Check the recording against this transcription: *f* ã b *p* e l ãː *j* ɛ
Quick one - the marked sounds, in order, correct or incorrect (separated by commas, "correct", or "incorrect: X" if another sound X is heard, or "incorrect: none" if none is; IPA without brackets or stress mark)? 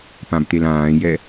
incorrect: p, incorrect: t̪, correct